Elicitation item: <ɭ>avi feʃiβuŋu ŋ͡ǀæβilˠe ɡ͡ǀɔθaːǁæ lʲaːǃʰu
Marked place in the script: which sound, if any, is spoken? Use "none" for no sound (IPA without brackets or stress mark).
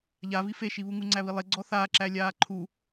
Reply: ʎ